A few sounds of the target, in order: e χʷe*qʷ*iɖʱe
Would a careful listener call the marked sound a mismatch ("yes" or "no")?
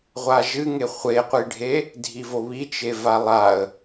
no